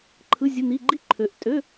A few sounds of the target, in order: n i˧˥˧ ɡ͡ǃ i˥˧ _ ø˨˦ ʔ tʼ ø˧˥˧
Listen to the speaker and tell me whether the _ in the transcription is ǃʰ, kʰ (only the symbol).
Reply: ǃʰ